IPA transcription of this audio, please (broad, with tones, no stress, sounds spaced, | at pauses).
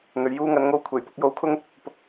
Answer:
n̪ ɵ˨ ɥ j uː˧ ŋ ɐ˨˧ n ŋ o˧ w kʷʰ e˨˩ j p ʊ˧ k̚ j o˧ w kʰ ʊ˥ ŋ | p ʊ˧ k̚